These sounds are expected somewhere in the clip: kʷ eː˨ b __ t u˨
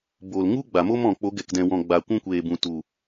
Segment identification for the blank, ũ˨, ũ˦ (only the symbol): ũ˨